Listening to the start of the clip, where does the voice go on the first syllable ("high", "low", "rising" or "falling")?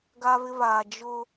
high